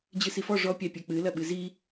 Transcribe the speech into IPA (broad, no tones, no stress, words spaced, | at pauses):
d͡ʑɨsifɔ ʐɔ pʲapʲɛk͡pɨ lɐɓɨzi